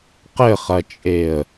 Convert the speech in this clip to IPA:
qɘχɐt͡ʃʼeə̯

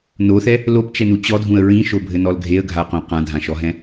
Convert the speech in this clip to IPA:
noθɛ | lopt͡ʃɛnu t͡ɕɔdʱũə̯ ɹĩʃobʱɘnɔl ɡʱeə̯ɡʱaqõ qãdʱãʃɔɦɛ̃

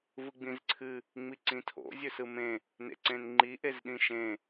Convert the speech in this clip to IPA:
vɯɡ͡bĩzǀʰɨ | ŋ͡miǀĩtʰo̰ zʲɵsɯmẽ | nḛǀẽnŋ͡ǃi ʔezɗĩʃẽ

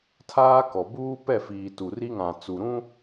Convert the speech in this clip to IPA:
tʰaː˦kɔ˨ buː˦pɛ˦˨fiː˨ tu˨ri˦ŋã˨ t͡su˨ ɾũ˦

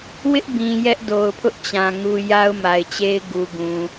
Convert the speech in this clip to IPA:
wɪ˦ʔbĩ˨ jɛ˦ʔdo˨ʊ̯pʰʊ˦ʔt͡ɕã˨ ŋu˦ ja˦ʊ̯ma˨ɪ̯t͡ɕe˦ɪ̯ ɡu˨ ɡũ˨

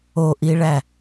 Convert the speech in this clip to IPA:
oʔiɭæ

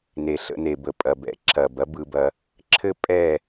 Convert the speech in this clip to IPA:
ne˨ɬə̰˧ne˨ bə˨pʼɐ˨bɛ̰˨˦ ǁʰɐ˨b ɐ˦ bɯ˧bɐ˧ | ǁʰɘ˦pʼɛ˦˨

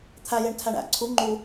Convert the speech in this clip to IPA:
t̪ʰæ jeɳtʰæɳæ̰ ǀʰu ŋ͡ǃu

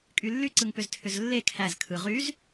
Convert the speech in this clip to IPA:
kʼylːy ǀɯŋpʏztʰʏzlːe kʰæz kʰɯ ʁyz

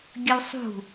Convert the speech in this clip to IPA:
ɡʲəwsˤṳ

